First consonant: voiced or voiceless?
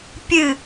voiceless